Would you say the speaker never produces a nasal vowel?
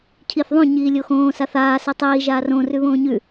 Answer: no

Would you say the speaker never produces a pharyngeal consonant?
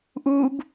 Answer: yes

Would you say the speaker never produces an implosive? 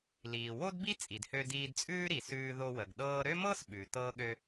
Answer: no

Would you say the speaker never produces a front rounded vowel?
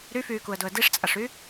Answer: no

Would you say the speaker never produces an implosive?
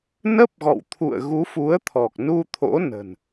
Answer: yes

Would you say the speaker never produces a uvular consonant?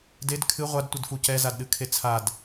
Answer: no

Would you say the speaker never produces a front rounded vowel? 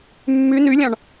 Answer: no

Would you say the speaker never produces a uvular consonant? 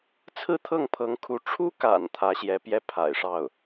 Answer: yes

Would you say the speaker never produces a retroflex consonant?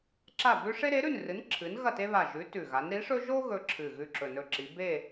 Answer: no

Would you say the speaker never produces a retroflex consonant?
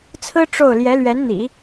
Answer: no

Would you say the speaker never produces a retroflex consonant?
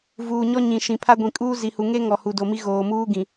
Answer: yes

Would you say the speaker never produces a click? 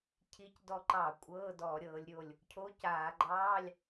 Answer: no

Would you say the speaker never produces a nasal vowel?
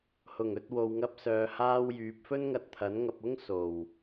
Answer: yes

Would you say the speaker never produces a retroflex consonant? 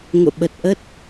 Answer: yes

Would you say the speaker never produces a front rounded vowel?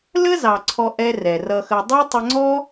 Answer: yes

